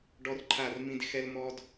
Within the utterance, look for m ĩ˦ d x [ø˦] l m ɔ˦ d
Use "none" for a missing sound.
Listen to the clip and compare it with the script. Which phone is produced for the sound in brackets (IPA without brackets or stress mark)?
ɛ˦